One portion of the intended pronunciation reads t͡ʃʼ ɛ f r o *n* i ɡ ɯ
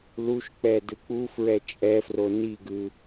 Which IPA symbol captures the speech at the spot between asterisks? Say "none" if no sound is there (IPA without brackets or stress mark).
n